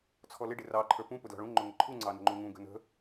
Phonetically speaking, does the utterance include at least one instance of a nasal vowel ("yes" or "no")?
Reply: yes